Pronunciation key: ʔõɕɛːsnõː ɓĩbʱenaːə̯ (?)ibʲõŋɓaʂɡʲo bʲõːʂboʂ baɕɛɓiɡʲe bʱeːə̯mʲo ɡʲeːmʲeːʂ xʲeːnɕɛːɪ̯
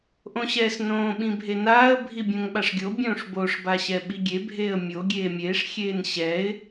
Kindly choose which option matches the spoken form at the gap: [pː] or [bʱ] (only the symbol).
bʱ